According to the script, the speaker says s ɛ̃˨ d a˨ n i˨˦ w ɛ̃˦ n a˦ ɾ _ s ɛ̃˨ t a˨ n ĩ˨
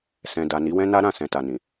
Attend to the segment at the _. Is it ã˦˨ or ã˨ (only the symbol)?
ã˦˨